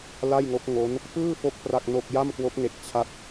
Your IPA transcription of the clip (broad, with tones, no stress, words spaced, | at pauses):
la˥˩jŋo˦˥k̚ ŋo˦˥n | pɯː˥˩fo˦˥k̚ pra˥˩k̚no˥˩k̚ ja˥˩mkwo˦˥k̚ŋe˨˩k̚t͡ɕʰa˦˥t̚